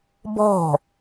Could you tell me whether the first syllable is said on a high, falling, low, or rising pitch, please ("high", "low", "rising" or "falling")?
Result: falling